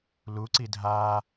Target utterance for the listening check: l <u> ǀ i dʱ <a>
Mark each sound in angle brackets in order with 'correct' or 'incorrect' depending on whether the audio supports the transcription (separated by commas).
correct, correct